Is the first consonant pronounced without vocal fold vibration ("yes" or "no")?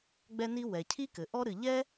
no